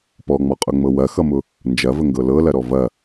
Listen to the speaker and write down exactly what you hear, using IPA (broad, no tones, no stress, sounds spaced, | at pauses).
p ɔ ŋ͡m ɔ qʼ ʊ ŋ͡m ɤ w ɐ x ʌ m ʊ | n d͡ʒ ɐ v ə ŋ ɡ ɤ l ɤ l ɐ ɾ ɔ v ɐ